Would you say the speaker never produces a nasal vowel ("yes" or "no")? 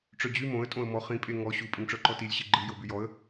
no